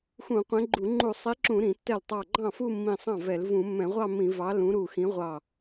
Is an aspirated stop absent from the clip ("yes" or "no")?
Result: yes